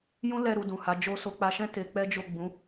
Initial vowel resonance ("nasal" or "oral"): nasal